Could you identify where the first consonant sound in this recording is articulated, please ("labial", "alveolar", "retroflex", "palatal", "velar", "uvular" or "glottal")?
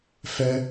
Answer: labial